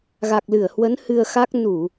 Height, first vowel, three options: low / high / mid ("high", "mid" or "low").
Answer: low